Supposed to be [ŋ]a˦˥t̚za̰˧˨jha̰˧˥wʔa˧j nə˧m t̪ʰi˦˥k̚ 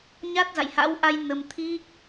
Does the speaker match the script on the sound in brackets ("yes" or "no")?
no